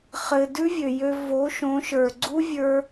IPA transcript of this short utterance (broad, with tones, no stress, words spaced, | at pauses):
χɘ˨ dʉ˦vʲø˨jø˧ vo˨˦ʃõ˨˦ ʃə˞˨ɡ͡ǀu˦ vʲə˞˦